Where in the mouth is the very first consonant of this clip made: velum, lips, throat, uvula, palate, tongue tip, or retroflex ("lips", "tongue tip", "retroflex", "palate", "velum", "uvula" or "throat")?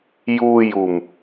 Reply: palate